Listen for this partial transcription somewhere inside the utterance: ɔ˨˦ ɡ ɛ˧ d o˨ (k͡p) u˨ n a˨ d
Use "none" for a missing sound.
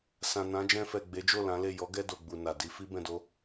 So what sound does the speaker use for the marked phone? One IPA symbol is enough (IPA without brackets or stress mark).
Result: ɡ͡b